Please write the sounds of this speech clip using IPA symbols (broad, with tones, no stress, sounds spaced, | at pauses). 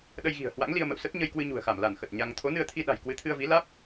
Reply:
ɗ ə˧ j ɣ i̤˨˩ ə̯ h w a̰˧˥ ŋ l i˧ ə̯ m ə̰˧˨ w s ə˦˥ t̚ ɲ ə˧ j k w ɨ˧ ɲ ṳ˨˩ ə̯ x a˧˩ m l a˧˩ n x ə˨˩ t̚ ɲ a˧ ŋ t̪ʰ o˨˦ n ɨ˧ ə̯ t̪ʰ i˧ ɗ a̤˨˩ j k w ɨ˨˦ t̪ʰ ɨ˧ ə̯ v i˨˦ l aː˦˥ p̚